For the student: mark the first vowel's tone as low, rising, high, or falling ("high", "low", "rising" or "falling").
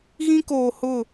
high